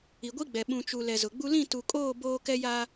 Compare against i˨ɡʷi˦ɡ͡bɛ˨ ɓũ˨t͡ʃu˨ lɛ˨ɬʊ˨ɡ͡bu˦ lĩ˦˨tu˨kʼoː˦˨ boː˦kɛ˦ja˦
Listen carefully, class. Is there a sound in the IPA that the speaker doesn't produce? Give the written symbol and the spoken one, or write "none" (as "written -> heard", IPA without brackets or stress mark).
ɬ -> z